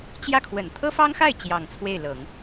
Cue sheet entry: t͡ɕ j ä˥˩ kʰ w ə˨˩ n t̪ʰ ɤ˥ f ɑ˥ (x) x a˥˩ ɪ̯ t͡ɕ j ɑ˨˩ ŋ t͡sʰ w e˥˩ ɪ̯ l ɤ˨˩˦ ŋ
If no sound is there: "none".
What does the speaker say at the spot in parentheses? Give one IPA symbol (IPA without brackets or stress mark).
ŋ